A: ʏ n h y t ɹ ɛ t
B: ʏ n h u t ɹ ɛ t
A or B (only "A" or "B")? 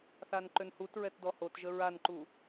B